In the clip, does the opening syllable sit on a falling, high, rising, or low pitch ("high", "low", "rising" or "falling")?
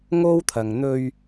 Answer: high